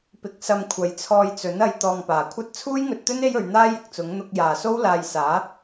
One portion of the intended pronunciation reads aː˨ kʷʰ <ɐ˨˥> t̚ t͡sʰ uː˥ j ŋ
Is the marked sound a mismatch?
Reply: yes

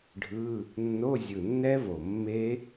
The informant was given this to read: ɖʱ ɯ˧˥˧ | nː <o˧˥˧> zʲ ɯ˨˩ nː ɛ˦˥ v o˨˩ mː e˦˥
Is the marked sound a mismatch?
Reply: no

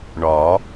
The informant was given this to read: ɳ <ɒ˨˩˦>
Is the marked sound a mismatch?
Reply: no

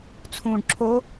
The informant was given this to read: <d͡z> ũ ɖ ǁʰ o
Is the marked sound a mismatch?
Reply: yes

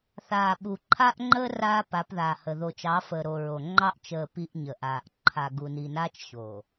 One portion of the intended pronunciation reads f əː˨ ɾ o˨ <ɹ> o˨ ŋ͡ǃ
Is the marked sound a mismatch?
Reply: no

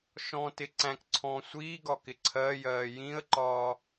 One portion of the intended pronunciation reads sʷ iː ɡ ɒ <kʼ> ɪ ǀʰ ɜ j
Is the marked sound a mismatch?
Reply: yes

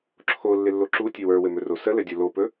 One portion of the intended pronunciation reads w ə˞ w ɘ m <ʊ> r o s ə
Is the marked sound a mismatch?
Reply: yes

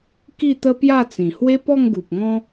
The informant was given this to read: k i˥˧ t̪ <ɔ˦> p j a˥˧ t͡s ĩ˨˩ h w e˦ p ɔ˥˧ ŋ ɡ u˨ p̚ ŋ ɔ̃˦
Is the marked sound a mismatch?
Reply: yes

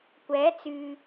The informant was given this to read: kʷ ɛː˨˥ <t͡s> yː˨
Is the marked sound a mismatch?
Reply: no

